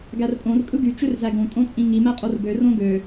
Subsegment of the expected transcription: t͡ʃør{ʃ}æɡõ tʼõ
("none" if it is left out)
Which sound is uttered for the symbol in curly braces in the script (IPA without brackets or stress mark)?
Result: z